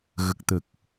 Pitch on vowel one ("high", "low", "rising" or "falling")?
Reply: low